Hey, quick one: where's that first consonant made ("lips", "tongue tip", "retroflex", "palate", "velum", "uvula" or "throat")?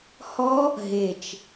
throat